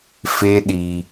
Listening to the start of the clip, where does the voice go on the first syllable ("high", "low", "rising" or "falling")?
high